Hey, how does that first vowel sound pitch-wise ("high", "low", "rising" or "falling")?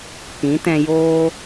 rising